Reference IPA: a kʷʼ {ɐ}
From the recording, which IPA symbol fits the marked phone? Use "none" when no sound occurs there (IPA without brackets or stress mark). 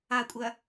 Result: ɐ